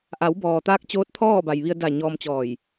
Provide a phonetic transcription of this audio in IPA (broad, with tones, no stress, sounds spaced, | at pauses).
ʔ a˩˧ w b ɔː˩ t̪ aː˧ k̚ t͡ɕ oː˧˥ t̚ t̪ʰ ɔː˥˨ b a˩ j ʋ i˧ ə̯ d a˧˩ ɲ ɔː˧ m t͡ɕ ɔː˧˩ j